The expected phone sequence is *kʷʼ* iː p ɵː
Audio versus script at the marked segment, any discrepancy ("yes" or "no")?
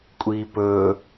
no